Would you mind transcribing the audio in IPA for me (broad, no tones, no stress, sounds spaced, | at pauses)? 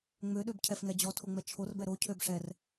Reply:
ŋ͡m ø ɗ ø b cʰ ɛ f ŋ ɛ d͡ʑ ɔ tʰ o ŋ͡m ɛ t͡ʃʰ o r b ɛ ɾ o cʰ ø b ʂ ɛ r